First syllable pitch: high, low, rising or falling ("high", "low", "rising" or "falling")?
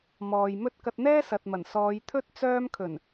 low